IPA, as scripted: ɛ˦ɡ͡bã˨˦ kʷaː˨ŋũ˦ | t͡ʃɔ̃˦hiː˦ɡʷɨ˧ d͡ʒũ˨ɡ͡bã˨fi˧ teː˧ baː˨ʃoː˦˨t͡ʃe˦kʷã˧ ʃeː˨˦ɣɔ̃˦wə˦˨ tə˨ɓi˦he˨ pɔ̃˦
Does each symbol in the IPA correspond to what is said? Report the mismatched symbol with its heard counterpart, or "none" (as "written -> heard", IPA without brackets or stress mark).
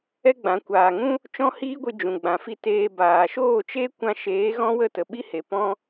none